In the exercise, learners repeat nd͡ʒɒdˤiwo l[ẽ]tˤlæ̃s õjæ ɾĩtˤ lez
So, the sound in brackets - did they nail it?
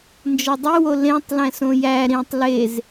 yes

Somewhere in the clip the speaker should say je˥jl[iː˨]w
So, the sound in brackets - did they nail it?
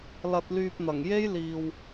yes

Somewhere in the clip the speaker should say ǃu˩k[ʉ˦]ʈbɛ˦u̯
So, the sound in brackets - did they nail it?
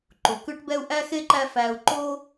yes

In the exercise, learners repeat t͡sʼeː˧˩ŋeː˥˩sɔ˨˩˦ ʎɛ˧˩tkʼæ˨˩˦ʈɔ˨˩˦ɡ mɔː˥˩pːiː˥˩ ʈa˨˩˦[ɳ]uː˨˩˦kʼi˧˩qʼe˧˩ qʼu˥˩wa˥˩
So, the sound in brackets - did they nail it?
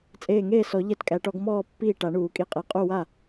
yes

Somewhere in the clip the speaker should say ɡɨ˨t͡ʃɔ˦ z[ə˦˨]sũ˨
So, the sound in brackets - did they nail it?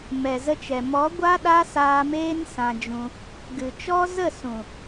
yes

